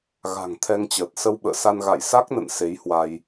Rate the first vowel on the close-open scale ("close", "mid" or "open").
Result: open